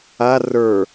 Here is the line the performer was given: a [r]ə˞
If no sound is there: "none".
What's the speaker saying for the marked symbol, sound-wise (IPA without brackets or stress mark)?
r